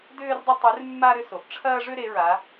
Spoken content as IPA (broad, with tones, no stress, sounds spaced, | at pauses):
d ʏː˦ r dˤ ʏ˦ tˤ ʉ˨˦ r mː a˦ ɾ ʏ˦ s o˩ ʔ ʈ͡ʂʰ ɐː˦ ʐ ʏ˦ ɾ e˨˦ ɹ a˨˦